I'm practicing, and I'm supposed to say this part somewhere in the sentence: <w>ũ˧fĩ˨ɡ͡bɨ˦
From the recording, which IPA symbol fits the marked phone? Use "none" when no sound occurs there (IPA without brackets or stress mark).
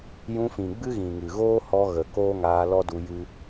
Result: j